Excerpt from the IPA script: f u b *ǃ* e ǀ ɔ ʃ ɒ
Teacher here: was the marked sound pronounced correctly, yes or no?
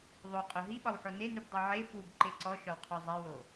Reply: yes